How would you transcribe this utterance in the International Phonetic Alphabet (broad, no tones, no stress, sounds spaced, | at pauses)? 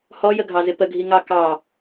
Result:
h ɔ j ə ɡʱ ɑ z ɪ p ə ɡʱ i ŋ ɑ k ɑ